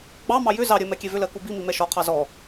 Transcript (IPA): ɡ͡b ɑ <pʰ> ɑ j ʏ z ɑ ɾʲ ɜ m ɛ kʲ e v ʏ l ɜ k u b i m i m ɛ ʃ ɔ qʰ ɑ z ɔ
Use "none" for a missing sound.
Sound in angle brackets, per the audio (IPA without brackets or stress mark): m